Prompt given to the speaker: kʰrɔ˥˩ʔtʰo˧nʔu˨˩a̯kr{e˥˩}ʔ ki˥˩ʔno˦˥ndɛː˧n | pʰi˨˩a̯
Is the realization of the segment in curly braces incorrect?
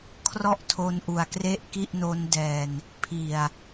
no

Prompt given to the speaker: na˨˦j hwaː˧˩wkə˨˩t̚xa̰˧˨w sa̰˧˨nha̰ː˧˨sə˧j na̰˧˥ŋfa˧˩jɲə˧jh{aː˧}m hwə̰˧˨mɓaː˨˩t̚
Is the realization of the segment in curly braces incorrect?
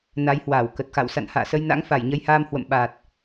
no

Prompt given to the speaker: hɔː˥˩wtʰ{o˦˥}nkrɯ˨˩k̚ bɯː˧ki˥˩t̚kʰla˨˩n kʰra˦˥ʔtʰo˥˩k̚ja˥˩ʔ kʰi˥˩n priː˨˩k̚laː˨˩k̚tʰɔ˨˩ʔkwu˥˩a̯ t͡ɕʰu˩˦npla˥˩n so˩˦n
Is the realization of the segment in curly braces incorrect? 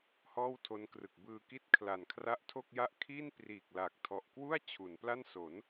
no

